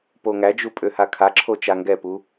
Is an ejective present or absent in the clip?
present